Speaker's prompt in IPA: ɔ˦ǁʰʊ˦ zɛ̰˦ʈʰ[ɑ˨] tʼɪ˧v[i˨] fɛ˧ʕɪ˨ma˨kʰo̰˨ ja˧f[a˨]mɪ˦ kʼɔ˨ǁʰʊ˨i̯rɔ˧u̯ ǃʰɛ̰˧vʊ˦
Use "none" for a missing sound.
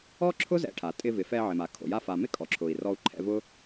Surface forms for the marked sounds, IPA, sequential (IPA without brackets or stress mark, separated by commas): a˨, ɪ˨, a˨